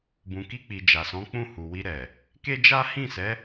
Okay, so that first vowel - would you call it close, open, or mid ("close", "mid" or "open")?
close